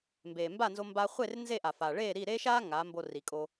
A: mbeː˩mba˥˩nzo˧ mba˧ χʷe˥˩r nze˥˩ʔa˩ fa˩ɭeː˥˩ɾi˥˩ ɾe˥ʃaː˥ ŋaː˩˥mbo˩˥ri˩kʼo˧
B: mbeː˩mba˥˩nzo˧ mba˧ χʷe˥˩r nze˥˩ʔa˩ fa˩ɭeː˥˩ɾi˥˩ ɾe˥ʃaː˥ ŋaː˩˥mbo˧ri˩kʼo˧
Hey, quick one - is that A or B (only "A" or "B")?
B